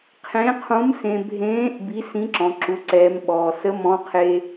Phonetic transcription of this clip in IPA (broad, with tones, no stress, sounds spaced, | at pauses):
qʰ ẽ˧˥ qʰ ũ˧˥ m s ẽ˧ bʱ ẽː˧˥ ʔ b i˧˥ s ĩ˧˥ ǁ ɔ̃˧˥ ǁ u˧˥ ǀ ɛː˧˥ m ɓ ɔː˧ s ə˧˥ m ɔ̃˧˥ qʰ e˧